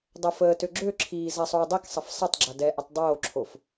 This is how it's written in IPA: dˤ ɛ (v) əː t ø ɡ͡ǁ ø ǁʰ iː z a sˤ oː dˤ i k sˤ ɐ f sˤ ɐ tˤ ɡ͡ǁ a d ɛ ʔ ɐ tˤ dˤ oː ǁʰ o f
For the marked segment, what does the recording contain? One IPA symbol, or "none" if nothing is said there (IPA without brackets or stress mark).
f